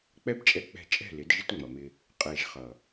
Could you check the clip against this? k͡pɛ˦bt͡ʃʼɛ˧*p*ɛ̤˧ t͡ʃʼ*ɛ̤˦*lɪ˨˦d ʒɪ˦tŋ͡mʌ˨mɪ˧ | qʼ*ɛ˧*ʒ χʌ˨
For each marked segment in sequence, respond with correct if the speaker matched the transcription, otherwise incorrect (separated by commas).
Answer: incorrect, incorrect, incorrect